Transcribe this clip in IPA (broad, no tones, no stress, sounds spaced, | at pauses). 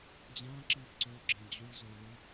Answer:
d͡ʑ ã ǁ i ǀ o ɡ͡ǁ ɛ̃ d͡ʑ u ɭ z o ɭ u